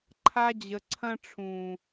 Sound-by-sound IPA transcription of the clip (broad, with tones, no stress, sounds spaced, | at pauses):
ǃʰ a˧ d͡ʑ ə˨ ǀʰ ɐ̃˧ ʈ͡ʂʰ ũː˨